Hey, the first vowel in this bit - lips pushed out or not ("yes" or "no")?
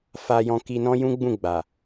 no